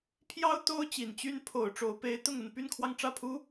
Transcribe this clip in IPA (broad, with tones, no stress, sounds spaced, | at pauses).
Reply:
pʰ j ɑ˥ ʊ̯ t̪ o˥ ʊ̯ t͡ɕ i˨˩ n t͡ɕ y˥ n pʰ o˨˩ ʊ̯ ʈ͡ʂ o˧˥ ʊ̯ p e˧˥ ɪ̯ t̪ ʊ˥˧ ŋ ə˥˧ n p y˥˧ n kʰ w ɑ˥˧ ŋ ʈ͡ʂ ä˥˩ pʰ u˥